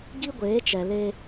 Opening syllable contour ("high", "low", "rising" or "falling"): high